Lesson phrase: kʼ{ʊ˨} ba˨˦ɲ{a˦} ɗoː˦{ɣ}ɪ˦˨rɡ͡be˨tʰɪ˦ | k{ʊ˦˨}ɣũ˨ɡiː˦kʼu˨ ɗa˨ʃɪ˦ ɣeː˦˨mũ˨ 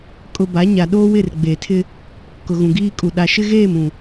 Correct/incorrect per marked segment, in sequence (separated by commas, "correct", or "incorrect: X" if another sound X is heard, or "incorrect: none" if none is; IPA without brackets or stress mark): correct, incorrect: a˨, incorrect: w, incorrect: ʊ˨